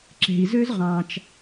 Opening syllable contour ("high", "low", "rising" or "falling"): low